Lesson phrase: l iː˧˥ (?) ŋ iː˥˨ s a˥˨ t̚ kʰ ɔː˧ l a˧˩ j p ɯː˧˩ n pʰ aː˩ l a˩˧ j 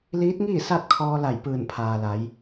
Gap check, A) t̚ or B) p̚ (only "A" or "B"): A